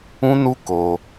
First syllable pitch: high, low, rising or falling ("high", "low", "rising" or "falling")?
high